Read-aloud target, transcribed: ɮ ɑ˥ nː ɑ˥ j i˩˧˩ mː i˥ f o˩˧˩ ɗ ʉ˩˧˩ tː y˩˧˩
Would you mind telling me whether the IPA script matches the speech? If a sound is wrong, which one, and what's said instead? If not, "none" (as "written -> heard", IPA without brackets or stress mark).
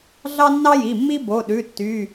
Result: f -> b